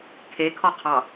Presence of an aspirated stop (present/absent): present